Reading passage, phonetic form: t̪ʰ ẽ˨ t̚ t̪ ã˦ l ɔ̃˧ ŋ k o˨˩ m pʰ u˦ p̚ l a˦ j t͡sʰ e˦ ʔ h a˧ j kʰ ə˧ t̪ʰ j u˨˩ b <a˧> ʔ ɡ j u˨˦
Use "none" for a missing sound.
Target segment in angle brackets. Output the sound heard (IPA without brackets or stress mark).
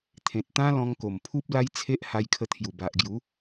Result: a˨